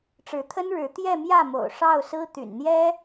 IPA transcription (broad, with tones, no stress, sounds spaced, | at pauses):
ʈ͡ʂ ɻ̩˧˥ t̪ʰ ə˥ n ɻ ɻ̩˧˥ t̪ j ɛ˥˧ m j ä˥˩ m o̰˨˩ ʊ̯ ʂ ɑ˥˩ ʊ̯ s ɹ̩˥ t̪ y̰˨˩ n n̪ j ɛ˥